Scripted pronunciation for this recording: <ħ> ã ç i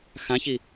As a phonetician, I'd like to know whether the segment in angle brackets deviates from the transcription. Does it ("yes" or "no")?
yes